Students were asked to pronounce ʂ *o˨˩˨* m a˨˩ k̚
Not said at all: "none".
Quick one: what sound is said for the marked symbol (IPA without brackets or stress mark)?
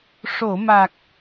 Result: o˨˩˨